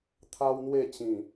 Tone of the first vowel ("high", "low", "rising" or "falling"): high